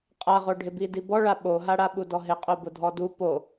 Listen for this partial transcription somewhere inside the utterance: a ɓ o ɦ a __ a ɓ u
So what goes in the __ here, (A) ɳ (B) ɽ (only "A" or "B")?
B